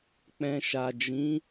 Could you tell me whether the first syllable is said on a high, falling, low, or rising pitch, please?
low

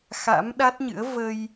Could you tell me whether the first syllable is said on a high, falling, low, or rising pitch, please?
rising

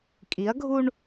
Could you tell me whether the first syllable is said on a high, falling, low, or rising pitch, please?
rising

